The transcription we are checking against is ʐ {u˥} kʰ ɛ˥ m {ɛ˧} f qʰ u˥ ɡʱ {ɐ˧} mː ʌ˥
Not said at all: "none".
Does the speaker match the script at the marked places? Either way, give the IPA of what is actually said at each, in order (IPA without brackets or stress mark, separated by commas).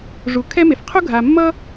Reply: u˧, e˧, a˧